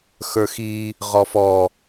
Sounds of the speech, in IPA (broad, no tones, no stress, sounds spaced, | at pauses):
x ə˞ x i | ʁ ɔ f ɔ